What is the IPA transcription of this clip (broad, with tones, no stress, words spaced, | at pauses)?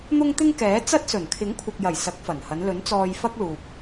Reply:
n̪ʊ˥ŋt̪ɪ˥ŋkɛː˨˥ t͡sɐ˥t̚ sɵ˨˩nkʰɪ˨˥ŋkʷʰɐ˨k̚jɐ˨˩j sɐ˨˥k̚fɐ˨˩nhɐ˨˧n lɵ˨˥nt͡sɔː˧jfɐ˥k̚ luː˨p̚